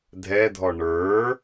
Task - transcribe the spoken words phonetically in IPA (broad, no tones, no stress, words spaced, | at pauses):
dʱɛdʱɔ ɳə˞